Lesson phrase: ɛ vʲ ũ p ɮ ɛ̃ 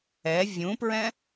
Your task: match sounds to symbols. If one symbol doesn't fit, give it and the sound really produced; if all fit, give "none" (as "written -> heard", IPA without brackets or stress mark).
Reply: ɮ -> ɹ